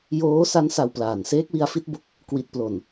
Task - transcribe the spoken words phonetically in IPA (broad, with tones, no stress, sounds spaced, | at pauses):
j oː˦˥ s a˦˥ n s a˧ w p l aː˨˩ n s eː˦˥ k̚ w i˧ a̯ f i˦˥ t̚ b o˦˥ k̚ | k w i˨˩ t̚ p l o˨˩ n